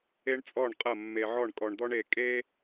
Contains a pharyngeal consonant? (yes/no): yes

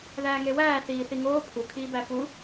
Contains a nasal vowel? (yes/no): no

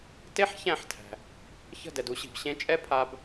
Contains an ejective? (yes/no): yes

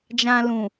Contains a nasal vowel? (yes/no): yes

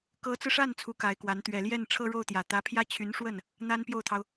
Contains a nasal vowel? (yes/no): no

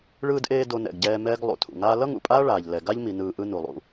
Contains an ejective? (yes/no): yes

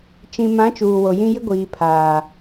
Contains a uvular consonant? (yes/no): no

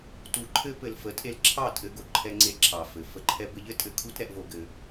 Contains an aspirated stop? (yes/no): yes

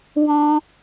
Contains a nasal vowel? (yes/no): yes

